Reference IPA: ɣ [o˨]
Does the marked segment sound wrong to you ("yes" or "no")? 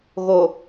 no